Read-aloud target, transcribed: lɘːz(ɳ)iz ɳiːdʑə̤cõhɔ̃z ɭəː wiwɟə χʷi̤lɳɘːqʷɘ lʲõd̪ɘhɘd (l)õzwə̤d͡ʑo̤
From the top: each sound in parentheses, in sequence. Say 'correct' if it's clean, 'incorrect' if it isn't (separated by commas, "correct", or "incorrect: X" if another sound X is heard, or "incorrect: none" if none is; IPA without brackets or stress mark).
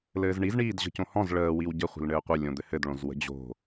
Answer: correct, incorrect: ɭ